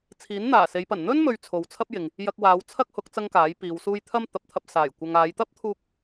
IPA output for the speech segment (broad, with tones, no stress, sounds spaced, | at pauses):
t͡sʰ iː˨˥ n n̪ aː˨˩ s e˨˧ j p ɐ˨˩ n n̪ ɵ˥ n m ɵ˧ ɥ t͡sʰ o˨ w t͡sʰ ɐ˥ p̚ j ɪ˨ ŋ | j ɐ˧ k̚ w aː˨˧ w t͡sʰ ɐ˥ k̚ h ʊ˨˥ k̚ t͡s ɐ˥ ŋ k aː˨˥ j p iː˨˧ w s uː˥ j t̪ʰ ɐ˥ m t̪ ɐ˨˥ p̚ t̪ʰ ɐ˧ p̚ s aː˨˩ j kʷ ɐ˨ ŋ aː˨˧ j t̪ ɐ˥ p̚ t̪ʰ uː˥ k̚